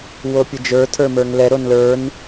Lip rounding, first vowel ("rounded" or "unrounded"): rounded